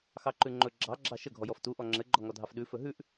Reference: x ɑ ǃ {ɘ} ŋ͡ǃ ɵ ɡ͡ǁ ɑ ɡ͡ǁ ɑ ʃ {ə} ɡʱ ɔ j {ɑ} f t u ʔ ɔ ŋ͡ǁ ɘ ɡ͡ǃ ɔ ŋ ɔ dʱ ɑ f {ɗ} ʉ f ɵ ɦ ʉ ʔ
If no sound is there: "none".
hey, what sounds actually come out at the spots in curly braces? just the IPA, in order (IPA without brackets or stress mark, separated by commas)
ʉ, ə, ɔ, ɗ